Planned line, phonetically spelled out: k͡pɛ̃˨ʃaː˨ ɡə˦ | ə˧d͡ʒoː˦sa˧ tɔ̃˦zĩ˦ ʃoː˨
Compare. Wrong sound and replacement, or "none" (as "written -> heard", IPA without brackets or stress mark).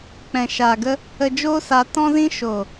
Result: none